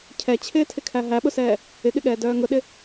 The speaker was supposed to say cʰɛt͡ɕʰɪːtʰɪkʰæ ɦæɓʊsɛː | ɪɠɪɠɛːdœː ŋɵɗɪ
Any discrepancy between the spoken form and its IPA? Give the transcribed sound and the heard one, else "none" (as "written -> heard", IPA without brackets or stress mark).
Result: ɵ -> ʊ